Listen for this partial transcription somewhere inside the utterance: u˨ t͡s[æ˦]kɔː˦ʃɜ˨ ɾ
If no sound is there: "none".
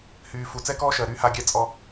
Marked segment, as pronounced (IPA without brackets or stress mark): ɛ˦